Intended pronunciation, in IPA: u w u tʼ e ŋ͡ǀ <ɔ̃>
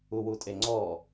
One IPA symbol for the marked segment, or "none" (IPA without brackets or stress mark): ɔ